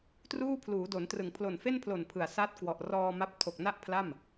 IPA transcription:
truː˥˩pʰluː˩˦do˩˦ntrɯ˨˩ŋ pʰlo˨˩nfe˥˩npʰlo˨˩n pʰɯ˨˩a̯ sa˦˥t̚ kwɔ˨˩ʔ rɔː˧ma˦˥p̚ tʰo˨˩k̚na˥˩ʔpʰla˥˩m

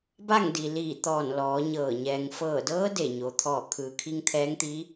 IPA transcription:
ba˥˨ŋdi˩liː˧˩ t̪ɔː˧˩n lɔː˩˧ɲɤː˧˩ ɲɛː˩ŋfɤː˧˩dɤː˧˥ de˧˩ɲo˩ t̪ʰɔː˧˩kʰɯː˩kʰi˧ŋ t̪ʰɛː˧˥ŋt̪i˧˥

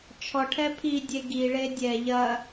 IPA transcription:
t͡ʃʰɔʈʰɛ pʰidʲe ɡiɭe dʲɛ ʎɐ

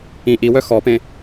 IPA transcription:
ĩ ʔiwœ xɔpẽ

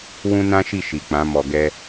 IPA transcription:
wũ˦ nã˦ʃi˦˨ ʃi˨k͡pã˨˦ mɔ˧ɡɛ˦

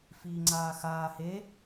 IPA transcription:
fiːŋ͡ǀaːxaː he

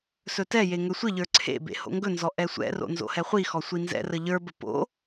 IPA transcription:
sɵtɛje ŋɵsʷəʎə˞ ǀʰḛ bḛho̰ŋɡɵnzɔ ʔɛsʷɛ̰ro̰ nzo̰hɛχʷixɔ sʷinzɛ̰rə ʎə˞bə po̰

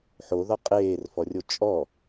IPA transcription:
ħoðɔ qʼeːrfɔrʲo t͡ʃʼɔ

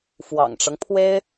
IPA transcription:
fwɑ̰˨˩ŋʈ͡ʂɤ˦ŋpʰwe˥ɪ̯

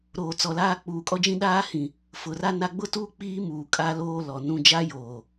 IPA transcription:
ɾoː˨t͡sɔ˨laː˦ k͡puː˨kʼɔ˦d͡ʒĩ˦ ɗaː˦hĩ˨ | fʊ˨ra˦ na˦ ɡ͡bʊ˦tuː˦ k͡piː˦ muː˨kʼa˦ loː˦ lɔ˨nũ˦ d͡ʒa˦joː˨

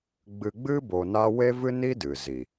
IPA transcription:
ɡ͡bɨ˧ɡ͡bɨ˦ bo˧na˦ we˦vɨ˦ni˦dɨ˨ zi˨

